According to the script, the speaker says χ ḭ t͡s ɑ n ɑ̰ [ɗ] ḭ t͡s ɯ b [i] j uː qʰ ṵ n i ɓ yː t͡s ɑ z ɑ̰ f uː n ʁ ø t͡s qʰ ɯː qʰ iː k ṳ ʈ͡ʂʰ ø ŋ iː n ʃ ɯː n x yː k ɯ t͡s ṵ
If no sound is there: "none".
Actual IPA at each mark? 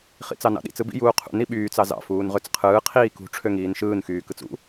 ɗ, ḭ

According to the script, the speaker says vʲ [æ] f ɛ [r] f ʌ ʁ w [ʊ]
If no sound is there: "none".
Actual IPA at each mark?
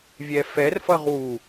ɛ, r, u

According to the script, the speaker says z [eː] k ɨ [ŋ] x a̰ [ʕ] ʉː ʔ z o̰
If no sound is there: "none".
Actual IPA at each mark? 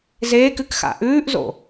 eː, k, ʔ

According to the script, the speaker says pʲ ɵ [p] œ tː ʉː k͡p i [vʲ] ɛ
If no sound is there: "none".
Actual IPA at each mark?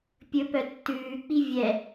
p, vʲ

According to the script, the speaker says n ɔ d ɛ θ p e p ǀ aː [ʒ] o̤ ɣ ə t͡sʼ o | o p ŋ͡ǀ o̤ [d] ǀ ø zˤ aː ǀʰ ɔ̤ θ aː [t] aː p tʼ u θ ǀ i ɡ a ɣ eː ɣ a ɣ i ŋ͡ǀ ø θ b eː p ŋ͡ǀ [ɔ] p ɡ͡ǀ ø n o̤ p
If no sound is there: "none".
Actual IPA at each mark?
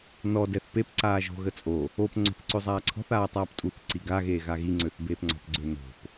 ʒ, θ, tˤ, ɔ̤

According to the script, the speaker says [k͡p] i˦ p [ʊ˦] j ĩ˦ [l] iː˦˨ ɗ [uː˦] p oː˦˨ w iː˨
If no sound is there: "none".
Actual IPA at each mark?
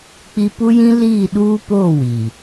k͡p, u˦, l, uː˦

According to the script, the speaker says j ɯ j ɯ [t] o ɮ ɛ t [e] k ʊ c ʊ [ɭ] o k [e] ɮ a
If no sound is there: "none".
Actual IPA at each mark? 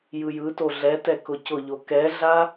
t, ɛ, ʎ, ɛ

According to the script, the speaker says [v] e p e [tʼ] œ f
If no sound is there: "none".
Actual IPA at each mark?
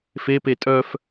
f, tʼ

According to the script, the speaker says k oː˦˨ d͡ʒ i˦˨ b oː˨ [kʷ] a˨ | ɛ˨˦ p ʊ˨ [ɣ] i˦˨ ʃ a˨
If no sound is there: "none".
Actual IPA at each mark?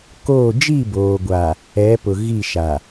ɡʷ, ɣ

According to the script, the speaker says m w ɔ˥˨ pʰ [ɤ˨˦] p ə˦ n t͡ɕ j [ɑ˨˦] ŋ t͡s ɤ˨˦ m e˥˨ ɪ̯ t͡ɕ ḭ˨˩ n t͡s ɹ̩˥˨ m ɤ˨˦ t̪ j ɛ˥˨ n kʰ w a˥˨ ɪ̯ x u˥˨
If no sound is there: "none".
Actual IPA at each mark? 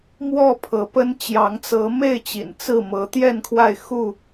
ɤ˨˦, ɑ˨˦

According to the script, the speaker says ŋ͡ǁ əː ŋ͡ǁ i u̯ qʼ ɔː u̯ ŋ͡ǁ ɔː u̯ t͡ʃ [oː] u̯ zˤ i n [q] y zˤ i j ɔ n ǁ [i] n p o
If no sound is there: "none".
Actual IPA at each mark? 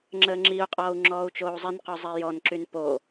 oː, q, y

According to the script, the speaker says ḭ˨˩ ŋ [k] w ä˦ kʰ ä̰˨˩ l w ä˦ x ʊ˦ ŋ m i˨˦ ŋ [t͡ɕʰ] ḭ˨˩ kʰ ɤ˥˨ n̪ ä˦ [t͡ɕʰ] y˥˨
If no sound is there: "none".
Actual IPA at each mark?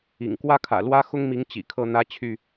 k, t͡ɕ, t͡ɕʰ

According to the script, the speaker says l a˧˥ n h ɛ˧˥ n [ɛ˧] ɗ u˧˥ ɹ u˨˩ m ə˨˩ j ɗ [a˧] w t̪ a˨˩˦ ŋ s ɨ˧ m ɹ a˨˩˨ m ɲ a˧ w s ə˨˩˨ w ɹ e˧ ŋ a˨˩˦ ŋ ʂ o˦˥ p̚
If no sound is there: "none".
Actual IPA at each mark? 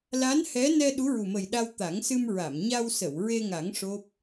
ɛ˧, a˧

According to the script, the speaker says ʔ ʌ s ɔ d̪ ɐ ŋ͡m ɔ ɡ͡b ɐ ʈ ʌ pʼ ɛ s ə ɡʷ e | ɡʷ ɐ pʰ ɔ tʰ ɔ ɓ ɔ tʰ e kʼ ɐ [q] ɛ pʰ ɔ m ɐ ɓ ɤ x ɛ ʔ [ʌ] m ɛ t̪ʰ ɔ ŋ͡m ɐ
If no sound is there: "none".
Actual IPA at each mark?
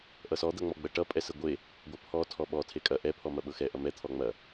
ʔ, ʌ

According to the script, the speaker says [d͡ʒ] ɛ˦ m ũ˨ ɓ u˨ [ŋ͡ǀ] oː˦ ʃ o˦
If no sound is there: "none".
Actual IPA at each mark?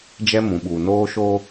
d͡ʒ, n

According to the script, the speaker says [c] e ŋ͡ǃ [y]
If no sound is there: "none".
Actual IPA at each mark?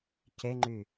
c, y

